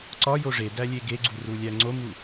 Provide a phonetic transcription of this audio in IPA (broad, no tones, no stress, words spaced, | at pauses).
ǀɒjo ʐedæ lʲeɡeɡ͡ǀu rulʲæŋ͡ǀomu